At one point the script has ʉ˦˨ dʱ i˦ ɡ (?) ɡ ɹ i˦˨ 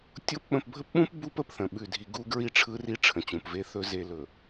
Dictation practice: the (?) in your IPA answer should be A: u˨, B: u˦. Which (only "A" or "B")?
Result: B